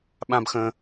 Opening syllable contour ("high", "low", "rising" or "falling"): high